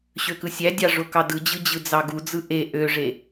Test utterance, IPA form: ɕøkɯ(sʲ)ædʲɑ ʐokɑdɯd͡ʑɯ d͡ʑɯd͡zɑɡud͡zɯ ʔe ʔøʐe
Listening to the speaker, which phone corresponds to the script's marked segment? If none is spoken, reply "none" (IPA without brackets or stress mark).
sʲ